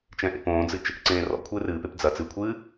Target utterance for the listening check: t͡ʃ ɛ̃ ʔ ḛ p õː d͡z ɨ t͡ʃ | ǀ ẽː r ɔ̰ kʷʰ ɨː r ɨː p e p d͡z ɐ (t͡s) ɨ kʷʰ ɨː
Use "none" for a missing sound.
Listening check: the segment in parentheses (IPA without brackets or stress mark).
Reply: t͡s